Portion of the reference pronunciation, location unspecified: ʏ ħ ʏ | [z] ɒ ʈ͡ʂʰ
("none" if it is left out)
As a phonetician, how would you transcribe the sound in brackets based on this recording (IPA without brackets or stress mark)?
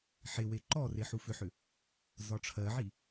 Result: z